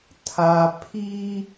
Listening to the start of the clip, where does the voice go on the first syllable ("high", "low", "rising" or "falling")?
low